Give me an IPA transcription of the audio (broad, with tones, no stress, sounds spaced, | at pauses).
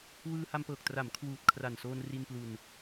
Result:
w ɯː˧ h a˧ m p ɤː˨˩ k̚ t r a˩˦ m kʰ w uː˨˩ t̚ kʰ r a˨˩ n s oː˧ n r i˧ n p l u˧ n